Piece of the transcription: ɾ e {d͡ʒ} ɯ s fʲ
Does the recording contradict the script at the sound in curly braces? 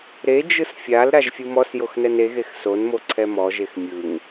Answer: no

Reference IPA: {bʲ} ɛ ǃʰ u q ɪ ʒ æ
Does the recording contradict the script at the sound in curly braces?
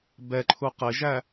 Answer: yes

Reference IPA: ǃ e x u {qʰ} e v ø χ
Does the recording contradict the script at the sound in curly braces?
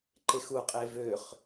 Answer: yes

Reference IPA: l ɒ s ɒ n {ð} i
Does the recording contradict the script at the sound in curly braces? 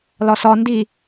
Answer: yes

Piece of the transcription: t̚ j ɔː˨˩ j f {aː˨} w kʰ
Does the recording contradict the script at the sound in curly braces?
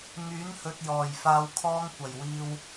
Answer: yes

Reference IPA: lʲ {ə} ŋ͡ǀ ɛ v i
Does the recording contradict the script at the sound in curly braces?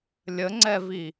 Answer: no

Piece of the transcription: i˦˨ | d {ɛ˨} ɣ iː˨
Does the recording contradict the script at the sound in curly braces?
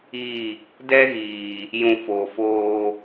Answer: yes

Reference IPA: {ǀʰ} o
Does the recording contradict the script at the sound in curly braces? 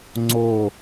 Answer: yes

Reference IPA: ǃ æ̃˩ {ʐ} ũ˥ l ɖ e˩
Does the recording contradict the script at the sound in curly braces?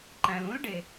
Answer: yes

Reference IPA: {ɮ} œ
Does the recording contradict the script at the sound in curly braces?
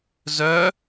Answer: yes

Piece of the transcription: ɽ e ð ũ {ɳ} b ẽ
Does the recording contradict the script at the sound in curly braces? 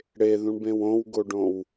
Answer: no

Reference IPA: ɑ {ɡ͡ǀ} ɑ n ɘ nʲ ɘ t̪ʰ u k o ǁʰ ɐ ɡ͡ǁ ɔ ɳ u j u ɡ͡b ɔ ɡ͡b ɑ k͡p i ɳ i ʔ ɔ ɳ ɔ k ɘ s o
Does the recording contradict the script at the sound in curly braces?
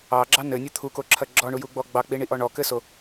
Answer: yes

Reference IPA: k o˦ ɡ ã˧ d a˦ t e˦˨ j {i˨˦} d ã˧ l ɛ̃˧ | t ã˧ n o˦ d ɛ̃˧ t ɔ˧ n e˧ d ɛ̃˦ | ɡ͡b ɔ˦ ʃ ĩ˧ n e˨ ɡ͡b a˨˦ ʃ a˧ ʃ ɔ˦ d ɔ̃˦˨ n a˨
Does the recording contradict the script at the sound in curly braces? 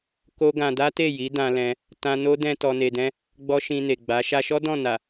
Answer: no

